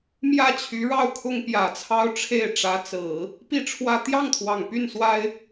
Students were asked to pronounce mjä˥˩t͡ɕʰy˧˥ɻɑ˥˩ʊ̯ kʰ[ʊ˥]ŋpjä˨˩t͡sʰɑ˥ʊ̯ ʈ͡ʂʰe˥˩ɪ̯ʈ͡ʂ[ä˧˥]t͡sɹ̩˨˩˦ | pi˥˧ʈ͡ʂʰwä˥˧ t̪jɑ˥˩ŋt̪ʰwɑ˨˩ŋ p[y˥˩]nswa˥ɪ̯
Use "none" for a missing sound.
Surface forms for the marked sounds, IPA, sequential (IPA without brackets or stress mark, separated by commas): ʊ˥, ä˧˥, y˥˩